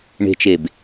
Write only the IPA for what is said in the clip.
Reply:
ɳ e̤ t͡ʃ e b

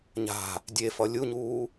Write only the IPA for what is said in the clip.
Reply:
ɲ a̤ | dʲ e f ʌ lʲ u ɲ uː

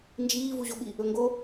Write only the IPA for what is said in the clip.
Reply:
n d͡ʒ iː v u ʑ o ɓ i | ɵ ŋ ɡ o

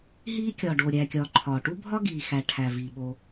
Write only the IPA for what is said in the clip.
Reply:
ɦ iː˥ kʲ ɒː˩ ɖ oː˩ ɾʲ æː˩ kʲ ɒː˩ ǃʰ ɒː˩ ʈ u˥ bʱ ɒ˥ ɡ iː˩ x æ˩ ʈʰ æ˩ v iː˩ ɓ o˩

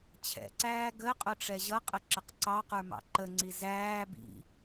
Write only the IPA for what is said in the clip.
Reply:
t͡ɕʰ ɛ̰ ǀ æː ɡ ə qʼ ʊ ʈ͡ʂ ɛ ʑ ʌ qʼ ə ǁ ə q ǀ ɑ q ə˞ m ɑ̰ ǃ ə ŋ͡ǀ i z æː b ḭ

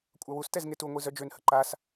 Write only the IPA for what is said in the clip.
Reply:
kʷʼ a w u s t ɛ z ŋ e t u ŋʷ i z œ d͡ʒ ø n h ə ǃ a s

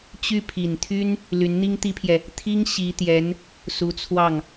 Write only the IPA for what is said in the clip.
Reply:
t͡ɕ y˥˩ pʰ i˨˩ n t̪ʰ y˥ n | l y˧˥ n n̪ i˥ ŋ t̪ i˥ pʰ j ɛ˨ | t̪ʰ i˥ ŋ ɕ i˧˥ t̪ j ɛ˧˥ n | s u˧˥ t͡sʰ w ɑ˥˩ ŋ

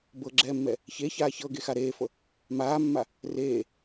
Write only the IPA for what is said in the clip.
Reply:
b ɤ ɡ͡ǁ ɛː mː ɛ | ç e ç aː ç ɤ ɡ e x a ɾ eː f ɤ | m aː mː a | r eː

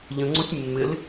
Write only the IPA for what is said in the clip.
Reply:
ʎ ə̃ ŋ͡ǀ o tʲ mː ɪ l

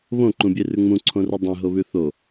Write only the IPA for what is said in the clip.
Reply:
β õ ǃ ũ bʲ e r ʉ ŋ͡m ũ ǀʰ õ r u dˤ ẽ ɦ o β ʉ θ o

